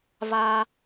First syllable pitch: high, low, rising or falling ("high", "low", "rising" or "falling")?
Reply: high